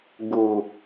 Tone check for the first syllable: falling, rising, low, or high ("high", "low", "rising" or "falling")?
low